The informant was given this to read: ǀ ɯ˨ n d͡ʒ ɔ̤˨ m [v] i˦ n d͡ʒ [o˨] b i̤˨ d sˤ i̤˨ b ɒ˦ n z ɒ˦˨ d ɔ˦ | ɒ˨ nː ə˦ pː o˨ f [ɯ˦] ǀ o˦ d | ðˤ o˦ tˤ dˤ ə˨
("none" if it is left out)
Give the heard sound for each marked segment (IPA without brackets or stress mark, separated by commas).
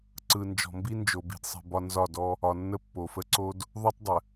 b, o˨, ə˦